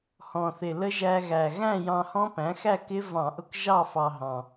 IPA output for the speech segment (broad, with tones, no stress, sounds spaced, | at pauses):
h ɔ̃˨˩ θ ɪ˨˩ l ə˦˥ ʒ æ˧ ɣ æ˨˩ ɣ æ̃˥˨ j ɑ̃˧ h ɔ̃˦˥ p æ̃˩˥ x æ˥˨ k ɪ˦˥ v ɑ̃˧˩˧ ʔ ʊ˧ k ʒ ɑ˥˨ f ɑ˧ ɦ ɑ̃˨˩